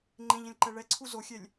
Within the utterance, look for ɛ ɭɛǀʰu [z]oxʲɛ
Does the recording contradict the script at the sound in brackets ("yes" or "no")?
no